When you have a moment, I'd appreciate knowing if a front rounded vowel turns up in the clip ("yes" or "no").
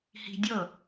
no